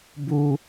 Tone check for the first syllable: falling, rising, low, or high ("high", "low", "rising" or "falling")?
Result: high